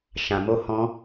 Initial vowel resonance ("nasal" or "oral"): nasal